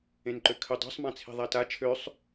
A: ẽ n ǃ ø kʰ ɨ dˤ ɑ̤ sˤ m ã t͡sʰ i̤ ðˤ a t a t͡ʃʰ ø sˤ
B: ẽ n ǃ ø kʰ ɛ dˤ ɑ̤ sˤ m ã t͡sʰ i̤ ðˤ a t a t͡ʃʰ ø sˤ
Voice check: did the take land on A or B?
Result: A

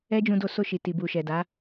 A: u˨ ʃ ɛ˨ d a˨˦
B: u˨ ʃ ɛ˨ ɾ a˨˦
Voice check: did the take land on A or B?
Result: A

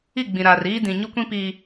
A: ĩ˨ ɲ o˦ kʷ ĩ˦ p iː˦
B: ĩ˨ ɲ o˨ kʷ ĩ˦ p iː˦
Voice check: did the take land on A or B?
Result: A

